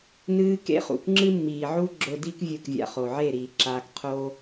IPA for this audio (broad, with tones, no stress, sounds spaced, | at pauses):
n ɨː˦ k ḛ˦ χ ṵ˨ k ŋ͡ǁ ɨ˦ mː iː˨ ʕ u˦ ɡ͡ǁ ɵ˧ d i˦ k vʲ ɵ˦˨ k vʲ a̰˧ χ o˨ ʕ e˦˨ ɾ iː˨ ǁ aː˧ k qʰ oː˦